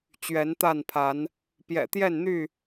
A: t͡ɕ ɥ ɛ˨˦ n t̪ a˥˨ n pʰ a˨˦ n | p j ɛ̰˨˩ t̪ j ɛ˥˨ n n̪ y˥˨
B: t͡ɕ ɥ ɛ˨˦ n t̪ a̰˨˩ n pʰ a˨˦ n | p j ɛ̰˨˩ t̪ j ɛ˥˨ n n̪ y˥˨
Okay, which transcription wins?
A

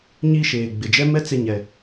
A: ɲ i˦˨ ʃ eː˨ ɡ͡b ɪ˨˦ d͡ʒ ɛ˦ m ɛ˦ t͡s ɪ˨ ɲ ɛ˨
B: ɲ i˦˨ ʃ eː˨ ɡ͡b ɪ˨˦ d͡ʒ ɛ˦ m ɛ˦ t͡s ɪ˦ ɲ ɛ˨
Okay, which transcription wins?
A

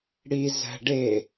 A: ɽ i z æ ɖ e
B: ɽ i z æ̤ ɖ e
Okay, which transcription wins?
B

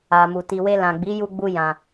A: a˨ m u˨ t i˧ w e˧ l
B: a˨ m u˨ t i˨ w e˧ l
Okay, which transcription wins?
B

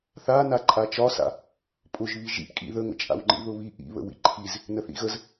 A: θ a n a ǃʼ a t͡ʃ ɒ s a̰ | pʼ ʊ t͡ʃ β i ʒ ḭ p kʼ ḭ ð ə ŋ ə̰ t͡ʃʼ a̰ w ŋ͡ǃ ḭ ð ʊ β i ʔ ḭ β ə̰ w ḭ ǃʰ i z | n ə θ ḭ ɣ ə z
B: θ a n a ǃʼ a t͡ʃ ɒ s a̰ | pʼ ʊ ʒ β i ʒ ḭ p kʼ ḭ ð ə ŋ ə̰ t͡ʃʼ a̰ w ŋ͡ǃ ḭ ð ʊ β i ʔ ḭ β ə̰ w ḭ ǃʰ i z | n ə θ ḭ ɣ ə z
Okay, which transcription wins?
B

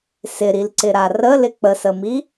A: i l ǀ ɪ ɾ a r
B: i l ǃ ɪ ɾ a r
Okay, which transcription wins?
A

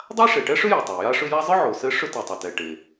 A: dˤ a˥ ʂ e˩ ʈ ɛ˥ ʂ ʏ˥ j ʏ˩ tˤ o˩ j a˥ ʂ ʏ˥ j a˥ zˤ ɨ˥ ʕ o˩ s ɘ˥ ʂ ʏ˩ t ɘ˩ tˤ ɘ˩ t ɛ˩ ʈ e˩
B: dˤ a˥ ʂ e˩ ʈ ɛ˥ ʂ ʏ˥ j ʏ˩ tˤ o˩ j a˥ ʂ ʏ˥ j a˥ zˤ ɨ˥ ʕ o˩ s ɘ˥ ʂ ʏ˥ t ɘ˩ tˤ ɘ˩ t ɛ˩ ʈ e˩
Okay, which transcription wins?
B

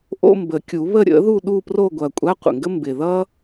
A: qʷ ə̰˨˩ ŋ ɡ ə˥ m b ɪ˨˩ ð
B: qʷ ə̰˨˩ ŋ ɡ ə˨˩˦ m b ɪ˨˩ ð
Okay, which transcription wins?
A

